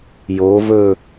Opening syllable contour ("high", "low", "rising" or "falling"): rising